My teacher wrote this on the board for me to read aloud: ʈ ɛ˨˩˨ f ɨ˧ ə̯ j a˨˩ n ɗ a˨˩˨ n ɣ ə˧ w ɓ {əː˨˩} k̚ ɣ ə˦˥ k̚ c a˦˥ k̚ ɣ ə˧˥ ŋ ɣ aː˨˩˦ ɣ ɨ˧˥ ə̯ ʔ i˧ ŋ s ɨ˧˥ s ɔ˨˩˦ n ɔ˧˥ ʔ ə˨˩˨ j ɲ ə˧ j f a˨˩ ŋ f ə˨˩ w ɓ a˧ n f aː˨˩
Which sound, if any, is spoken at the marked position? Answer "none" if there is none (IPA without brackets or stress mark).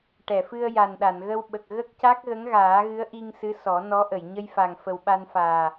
ə˨˩